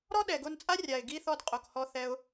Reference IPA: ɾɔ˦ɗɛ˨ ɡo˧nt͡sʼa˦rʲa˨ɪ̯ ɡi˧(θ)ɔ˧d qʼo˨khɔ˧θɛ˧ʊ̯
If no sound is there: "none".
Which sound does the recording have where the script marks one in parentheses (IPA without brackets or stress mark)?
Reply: θ